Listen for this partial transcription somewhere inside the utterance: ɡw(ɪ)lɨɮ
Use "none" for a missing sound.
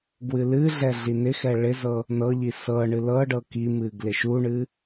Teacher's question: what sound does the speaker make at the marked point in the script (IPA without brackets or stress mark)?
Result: ɨ